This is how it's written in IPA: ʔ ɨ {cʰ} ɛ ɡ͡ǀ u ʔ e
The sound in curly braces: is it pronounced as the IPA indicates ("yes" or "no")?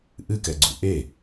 no